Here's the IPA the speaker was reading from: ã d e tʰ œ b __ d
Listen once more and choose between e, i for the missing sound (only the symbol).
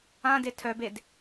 e